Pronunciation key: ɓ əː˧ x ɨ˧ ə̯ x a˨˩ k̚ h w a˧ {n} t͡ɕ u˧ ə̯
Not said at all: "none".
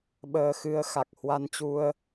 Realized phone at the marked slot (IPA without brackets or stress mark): n